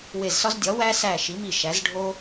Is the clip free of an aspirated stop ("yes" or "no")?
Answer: yes